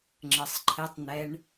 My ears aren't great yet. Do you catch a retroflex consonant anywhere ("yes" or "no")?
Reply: yes